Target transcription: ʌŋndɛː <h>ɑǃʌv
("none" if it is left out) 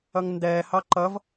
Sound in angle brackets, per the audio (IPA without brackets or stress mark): h